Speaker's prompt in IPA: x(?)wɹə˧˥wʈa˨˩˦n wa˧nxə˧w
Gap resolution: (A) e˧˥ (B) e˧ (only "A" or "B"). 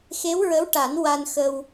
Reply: A